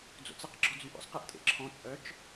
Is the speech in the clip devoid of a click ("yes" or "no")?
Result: no